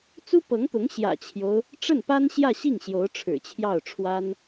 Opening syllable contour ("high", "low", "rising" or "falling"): high